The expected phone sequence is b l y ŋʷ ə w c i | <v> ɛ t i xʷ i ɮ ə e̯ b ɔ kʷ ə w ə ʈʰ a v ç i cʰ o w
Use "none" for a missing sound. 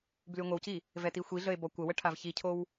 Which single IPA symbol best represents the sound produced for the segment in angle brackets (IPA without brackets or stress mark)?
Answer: v